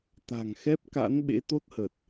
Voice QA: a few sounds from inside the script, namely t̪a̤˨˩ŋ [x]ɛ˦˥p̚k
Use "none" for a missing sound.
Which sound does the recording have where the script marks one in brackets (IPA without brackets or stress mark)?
x